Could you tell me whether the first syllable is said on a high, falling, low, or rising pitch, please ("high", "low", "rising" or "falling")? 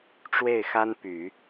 falling